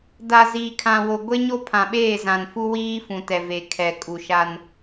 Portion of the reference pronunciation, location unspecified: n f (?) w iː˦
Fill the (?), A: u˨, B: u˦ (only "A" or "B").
B